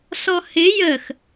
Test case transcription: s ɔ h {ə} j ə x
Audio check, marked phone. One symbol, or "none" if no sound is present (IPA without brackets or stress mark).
ɪ